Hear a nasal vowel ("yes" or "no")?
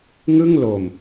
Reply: no